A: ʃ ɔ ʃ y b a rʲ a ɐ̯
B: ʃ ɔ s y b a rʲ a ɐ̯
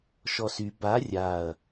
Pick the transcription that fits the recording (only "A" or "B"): B